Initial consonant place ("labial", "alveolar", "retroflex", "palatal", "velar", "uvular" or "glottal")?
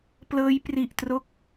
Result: labial